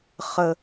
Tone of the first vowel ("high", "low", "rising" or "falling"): high